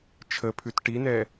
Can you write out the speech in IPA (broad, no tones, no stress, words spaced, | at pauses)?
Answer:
t͡ʃʰəpʰʉt ʈinɛ